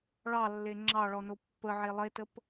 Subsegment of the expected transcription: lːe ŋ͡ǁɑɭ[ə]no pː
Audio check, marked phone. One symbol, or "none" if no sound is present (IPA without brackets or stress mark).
ɔ